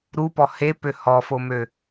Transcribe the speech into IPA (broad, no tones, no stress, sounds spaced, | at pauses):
ɾ u p ɔ h e p ø h ɔ f o m ø